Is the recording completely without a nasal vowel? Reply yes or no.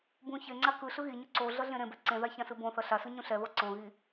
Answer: no